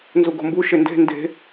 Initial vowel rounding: rounded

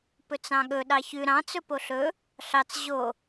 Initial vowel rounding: rounded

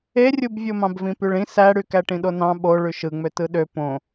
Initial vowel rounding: unrounded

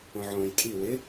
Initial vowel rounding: rounded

